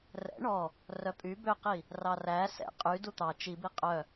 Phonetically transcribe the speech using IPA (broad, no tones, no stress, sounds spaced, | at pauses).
r ɛ̰ ɳ ɔ | r œ pʼ y b ø q i | r ɑ r æ s ɛ̰ qʼ y d u t̪ ɑ t͡ʃ i b i qʼ œ